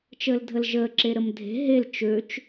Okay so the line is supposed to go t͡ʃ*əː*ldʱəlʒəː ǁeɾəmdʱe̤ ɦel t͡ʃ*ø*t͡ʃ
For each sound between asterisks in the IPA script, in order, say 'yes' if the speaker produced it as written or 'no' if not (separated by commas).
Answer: yes, yes